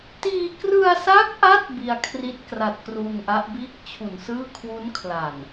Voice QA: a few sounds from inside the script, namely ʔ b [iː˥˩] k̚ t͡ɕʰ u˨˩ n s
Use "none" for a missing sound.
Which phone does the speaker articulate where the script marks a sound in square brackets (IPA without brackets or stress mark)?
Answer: iː˥˩